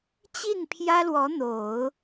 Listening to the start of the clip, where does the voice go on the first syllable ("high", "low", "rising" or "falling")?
falling